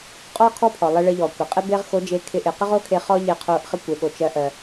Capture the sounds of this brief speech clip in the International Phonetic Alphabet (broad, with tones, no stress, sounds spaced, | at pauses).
qʼ ɔ˥ kʰ ɔ˥ pʰ ɔ˩ lˠ ɪ˧ ɭ ɪ˧ ʎ ɔ˩ kʷ ɪ˩ qʼ e˥ b e˥ ʁ x o˧˥ d͡ʒ e˧ kʰ ɪ˧˥ ʔ ɪ˩˧ q ɪ˥ ʁ o˥ kʰ e˧ χ ɔ˥ ʎ e˧ qʰ o˧ ʔ χ ɪ˥ kʷ e˩˧ ɠ o˩ t͡ʃ ɜ˧˥ ʔ ɜ˩